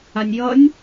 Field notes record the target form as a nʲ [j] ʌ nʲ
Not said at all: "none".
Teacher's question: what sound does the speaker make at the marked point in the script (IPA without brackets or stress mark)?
j